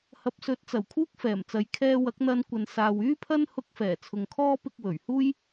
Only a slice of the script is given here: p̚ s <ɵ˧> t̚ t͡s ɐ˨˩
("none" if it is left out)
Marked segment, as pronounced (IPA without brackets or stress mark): ɵ˨˥